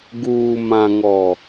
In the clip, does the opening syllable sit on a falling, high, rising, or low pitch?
low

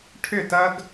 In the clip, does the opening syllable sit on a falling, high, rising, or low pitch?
falling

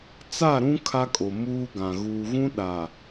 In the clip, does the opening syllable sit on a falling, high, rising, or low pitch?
falling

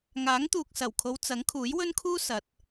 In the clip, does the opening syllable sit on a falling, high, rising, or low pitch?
rising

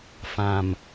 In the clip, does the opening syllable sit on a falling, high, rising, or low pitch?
low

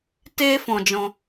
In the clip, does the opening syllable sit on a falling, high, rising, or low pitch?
high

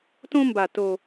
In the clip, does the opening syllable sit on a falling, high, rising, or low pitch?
high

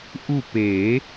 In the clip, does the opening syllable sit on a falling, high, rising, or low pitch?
falling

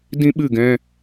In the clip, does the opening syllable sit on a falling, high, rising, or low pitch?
high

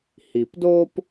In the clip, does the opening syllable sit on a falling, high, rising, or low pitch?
low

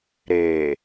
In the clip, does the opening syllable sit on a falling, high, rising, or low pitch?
low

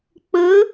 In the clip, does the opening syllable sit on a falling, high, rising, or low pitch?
rising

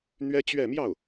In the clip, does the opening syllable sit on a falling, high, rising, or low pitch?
high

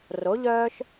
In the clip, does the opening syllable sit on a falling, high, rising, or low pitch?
rising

